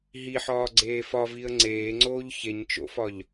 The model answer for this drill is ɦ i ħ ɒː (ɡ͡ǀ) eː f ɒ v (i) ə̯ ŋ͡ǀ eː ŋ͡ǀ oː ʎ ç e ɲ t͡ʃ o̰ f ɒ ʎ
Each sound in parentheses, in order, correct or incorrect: correct, correct

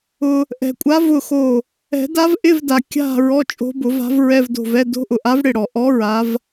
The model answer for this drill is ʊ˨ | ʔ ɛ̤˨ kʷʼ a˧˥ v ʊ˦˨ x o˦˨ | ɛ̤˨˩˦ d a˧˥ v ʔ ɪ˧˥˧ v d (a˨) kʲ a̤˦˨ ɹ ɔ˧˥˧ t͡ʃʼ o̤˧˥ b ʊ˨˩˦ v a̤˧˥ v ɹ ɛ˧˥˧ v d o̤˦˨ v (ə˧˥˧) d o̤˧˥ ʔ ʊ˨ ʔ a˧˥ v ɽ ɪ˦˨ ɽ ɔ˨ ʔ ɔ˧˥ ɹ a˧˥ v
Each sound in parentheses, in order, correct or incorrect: correct, incorrect

